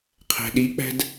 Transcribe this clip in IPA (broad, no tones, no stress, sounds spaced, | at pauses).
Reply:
qʰ æ̤ ɗ i k͡p æ̤ d